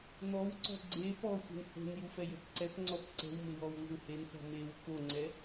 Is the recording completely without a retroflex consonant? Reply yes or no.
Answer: yes